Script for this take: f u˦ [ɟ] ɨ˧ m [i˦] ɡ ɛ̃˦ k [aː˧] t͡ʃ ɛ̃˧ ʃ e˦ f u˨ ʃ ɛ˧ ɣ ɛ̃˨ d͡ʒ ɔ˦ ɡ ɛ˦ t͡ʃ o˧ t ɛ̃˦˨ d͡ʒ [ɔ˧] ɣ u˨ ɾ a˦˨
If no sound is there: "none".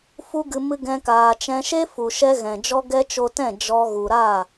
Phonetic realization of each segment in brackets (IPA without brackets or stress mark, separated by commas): ɡ, ɨ˦, aː˧, ɔ˧